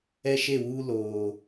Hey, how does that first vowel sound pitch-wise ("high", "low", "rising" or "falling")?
high